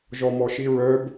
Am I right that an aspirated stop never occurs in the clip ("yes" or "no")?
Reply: yes